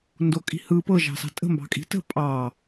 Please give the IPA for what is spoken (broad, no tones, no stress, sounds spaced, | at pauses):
n d o kʼ i̤ h ɯ p ɤ ʒ ɑ̤ s ɑ̤ tʼ ə̤ m b ɑ̤ kʼ i̤ t ə̤ pʼ ɑ